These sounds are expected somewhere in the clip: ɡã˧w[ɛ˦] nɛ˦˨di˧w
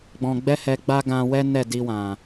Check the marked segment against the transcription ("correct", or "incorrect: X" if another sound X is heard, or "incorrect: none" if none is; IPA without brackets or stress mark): correct